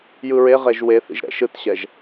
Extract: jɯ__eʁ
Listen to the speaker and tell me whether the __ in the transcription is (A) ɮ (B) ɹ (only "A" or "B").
B